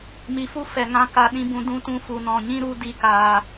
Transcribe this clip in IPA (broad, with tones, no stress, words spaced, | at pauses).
mi˧fu˦ fɛ˨ŋã˧ ka˧ɗĩ˦bũ˧ dũ˦tũ˧ fu˨nɔ̃˨ɲĩ˦ ɾu˨˦di˨kaː˨